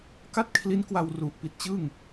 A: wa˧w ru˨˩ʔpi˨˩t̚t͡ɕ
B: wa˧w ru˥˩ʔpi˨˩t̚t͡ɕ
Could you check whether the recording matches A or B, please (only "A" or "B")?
A